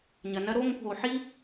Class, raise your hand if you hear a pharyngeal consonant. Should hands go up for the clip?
yes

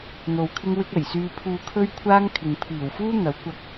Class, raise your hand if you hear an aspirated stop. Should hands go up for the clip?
yes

